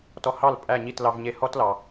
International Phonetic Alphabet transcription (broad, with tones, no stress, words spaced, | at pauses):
tɔ˧hɑ˥˩l pʼæ˥˩ɲi˥˩t lɑ˧vɲe˧ hɔ˥tlɑ˩